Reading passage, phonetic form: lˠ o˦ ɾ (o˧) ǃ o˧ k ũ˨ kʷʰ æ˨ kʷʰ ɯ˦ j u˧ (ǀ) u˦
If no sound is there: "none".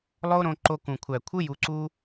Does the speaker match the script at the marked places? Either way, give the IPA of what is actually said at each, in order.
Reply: õ˧, ǀ

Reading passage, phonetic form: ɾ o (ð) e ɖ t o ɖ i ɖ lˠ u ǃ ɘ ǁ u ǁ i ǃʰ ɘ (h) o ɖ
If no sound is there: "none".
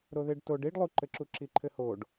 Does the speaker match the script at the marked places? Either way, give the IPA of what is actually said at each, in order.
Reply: ð, h

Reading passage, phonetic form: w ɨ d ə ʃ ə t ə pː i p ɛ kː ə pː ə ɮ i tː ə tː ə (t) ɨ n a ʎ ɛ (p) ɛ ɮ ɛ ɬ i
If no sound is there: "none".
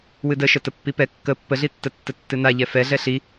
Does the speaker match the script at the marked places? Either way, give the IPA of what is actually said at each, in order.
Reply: tː, f

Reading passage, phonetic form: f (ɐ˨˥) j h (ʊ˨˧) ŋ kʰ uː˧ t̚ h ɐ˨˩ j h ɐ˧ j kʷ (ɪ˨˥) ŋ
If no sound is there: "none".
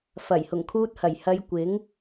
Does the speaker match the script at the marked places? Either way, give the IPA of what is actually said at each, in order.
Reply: ɐ˨˩, ʊ˨˩, ɪ˨˥

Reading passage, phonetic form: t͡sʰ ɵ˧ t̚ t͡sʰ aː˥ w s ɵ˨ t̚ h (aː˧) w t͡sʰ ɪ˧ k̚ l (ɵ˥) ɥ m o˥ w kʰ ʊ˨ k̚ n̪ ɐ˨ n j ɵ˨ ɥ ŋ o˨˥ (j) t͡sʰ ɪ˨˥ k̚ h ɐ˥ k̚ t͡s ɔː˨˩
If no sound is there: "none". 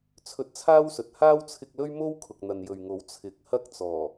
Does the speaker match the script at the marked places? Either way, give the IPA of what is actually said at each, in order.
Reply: aː˥, ɵ˥, w

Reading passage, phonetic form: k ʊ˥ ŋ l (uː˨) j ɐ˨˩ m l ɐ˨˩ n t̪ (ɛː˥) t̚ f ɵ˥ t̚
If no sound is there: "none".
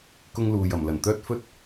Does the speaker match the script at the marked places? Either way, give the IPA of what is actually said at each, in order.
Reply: uː˨, œː˥

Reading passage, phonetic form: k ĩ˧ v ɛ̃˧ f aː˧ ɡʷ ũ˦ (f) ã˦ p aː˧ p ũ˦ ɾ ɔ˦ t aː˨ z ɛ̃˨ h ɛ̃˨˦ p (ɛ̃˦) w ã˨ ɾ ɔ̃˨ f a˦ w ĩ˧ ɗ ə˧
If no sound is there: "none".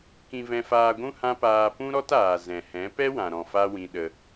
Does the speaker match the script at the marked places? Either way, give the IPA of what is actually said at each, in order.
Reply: h, ɛ˦

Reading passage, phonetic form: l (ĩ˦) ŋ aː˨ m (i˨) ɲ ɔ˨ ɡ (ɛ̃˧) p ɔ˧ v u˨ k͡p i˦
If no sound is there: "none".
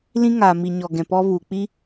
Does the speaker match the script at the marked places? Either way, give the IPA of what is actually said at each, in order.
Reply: ĩ˦, i˨, ɛ̃˨

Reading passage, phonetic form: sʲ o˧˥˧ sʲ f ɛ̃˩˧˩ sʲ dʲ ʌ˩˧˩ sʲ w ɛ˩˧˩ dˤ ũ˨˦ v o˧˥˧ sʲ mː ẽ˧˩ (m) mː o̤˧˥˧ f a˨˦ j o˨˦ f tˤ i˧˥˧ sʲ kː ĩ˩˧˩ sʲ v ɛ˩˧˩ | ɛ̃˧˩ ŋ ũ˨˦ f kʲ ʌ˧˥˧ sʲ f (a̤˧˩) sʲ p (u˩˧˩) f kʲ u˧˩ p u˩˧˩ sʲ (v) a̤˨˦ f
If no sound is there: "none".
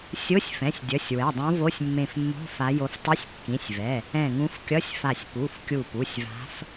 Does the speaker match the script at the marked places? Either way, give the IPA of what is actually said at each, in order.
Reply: f, a˧˩, u˩˧˩, v

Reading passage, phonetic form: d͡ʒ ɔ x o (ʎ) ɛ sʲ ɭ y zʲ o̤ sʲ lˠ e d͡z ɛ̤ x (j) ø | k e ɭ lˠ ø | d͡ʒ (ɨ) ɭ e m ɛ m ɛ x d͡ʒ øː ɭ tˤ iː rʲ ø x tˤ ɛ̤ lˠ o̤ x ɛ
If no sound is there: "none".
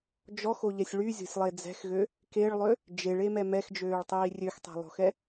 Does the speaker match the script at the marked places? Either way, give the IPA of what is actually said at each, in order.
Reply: ʎ, ɣ, e

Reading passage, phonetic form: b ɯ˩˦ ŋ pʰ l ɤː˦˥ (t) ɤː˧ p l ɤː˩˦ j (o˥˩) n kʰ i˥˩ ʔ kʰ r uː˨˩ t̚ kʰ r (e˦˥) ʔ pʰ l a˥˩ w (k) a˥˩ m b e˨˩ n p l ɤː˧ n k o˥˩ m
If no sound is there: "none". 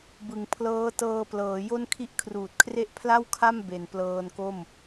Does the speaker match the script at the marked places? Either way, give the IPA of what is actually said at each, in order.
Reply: t, o˥˩, e˦˥, kʰ

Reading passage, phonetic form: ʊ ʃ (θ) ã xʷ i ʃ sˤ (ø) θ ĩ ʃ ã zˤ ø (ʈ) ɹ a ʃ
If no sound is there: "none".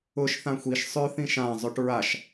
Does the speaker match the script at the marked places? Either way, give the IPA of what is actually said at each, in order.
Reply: θ, ø, ʈ

